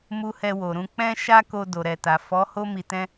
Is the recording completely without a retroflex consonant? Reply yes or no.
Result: yes